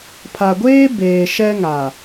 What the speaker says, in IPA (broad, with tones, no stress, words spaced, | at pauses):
pʰa˨ɡʷeː˦ beː˨ʃɛ˦ŋa˨